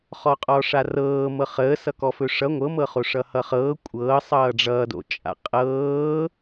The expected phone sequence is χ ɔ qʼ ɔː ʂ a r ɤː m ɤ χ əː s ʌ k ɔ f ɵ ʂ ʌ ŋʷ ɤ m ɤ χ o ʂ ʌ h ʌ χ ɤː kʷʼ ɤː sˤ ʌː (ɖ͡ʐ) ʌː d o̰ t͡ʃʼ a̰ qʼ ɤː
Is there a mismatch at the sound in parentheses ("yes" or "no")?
no